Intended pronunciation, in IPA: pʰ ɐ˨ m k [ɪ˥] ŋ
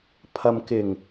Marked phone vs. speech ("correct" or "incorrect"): incorrect